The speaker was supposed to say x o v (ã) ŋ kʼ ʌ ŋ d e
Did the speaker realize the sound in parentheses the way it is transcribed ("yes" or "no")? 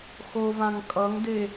yes